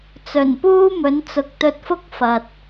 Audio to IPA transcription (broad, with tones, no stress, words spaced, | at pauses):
t͡sɵ˨˩npuː˥mɵ˨˥n t͡sʊ˨k̚t̪ɵ˧t̚fʊ˥k̚ fɐ˨t̚